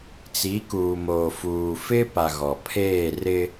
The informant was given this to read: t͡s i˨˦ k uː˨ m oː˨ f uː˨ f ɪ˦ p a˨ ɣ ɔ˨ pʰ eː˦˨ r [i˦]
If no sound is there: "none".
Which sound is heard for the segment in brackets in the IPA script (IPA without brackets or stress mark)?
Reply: ɪ˦